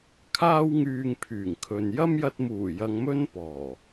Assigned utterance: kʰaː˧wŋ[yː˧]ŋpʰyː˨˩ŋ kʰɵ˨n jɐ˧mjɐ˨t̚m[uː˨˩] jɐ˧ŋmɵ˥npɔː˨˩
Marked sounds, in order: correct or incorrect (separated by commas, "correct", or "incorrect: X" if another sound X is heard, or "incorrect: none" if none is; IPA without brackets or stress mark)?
incorrect: yː˨, correct